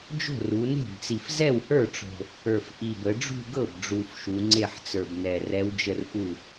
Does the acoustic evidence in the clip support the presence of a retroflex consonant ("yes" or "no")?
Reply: yes